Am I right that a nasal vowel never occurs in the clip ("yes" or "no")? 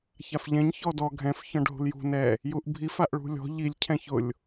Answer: no